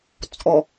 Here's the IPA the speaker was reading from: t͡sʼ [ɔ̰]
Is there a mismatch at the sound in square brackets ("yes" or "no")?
yes